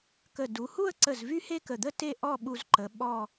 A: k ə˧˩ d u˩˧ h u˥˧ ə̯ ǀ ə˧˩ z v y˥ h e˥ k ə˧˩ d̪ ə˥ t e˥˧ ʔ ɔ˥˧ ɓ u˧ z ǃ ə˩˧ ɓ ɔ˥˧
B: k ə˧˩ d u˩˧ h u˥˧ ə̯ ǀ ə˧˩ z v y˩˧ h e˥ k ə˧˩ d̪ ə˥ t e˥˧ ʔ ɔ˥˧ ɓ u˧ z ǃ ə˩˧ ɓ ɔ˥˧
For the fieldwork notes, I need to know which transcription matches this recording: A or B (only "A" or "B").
A